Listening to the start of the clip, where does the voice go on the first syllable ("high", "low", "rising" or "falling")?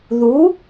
rising